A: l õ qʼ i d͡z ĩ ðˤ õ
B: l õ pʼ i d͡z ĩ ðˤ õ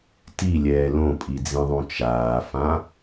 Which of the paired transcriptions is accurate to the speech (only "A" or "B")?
B